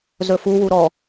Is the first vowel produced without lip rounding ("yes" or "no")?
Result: no